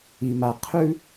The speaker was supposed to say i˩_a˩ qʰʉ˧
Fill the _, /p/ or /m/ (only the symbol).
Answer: m